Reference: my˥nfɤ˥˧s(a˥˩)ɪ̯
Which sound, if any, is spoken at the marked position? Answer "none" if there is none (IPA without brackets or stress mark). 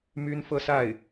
a˥˩